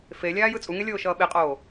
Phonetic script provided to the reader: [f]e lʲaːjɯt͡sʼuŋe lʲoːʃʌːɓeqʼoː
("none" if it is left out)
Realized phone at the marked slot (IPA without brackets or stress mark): f